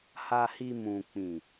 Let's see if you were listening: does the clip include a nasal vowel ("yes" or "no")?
yes